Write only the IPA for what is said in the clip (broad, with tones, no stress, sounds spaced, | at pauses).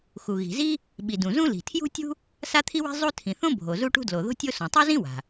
x u˩ ɣ i̤˩ z i˥ | ɓ i˩ d ũ˩ z ũ˥ l i̤˩ tʰ j ṳ˥ tʲ ṳ˥ | s a˥ t̪ʰ i˥ w i̤˥ zˤ u˥ tʰ ĩ˩ θ õ˥ bʱ o˩ z u˥ ʈ ṳ˥ d l o˩ ð o̤˥ tʲ o˥ s õ˩ tˤ u˥ z ĩ˥ w a̤˩